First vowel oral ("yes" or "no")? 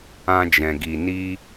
no